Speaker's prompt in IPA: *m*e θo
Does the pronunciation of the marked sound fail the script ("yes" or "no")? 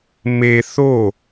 no